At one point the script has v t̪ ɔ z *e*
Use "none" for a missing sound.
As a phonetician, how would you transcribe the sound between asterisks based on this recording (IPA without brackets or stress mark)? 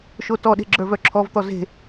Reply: e̤